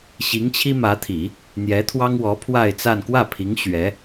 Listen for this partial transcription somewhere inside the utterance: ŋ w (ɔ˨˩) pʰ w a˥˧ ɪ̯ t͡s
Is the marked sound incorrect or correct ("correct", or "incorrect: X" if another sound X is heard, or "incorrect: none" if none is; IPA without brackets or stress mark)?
incorrect: ɔ˧˥